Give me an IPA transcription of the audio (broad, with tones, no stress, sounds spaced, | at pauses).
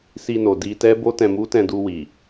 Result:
s i˧ n o˨ d i˧ t ɛ˦ b o˦ t ɛ̃˧ m u˦ t ɛ̃˧ d u˧ w i˨